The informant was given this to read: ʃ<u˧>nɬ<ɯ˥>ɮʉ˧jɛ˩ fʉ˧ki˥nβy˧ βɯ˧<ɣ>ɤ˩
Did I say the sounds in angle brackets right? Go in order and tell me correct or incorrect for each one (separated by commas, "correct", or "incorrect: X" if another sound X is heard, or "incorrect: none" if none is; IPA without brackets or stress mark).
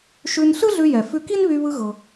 incorrect: ʉ˧, correct, correct